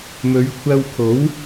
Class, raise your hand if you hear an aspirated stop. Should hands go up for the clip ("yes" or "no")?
yes